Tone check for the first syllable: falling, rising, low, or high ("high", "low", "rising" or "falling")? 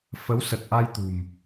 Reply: rising